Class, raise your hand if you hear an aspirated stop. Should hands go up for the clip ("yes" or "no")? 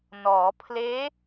yes